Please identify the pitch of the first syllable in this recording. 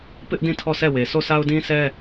high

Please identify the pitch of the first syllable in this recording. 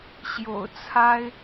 low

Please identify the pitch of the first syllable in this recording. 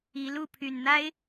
rising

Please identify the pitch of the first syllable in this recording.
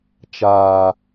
low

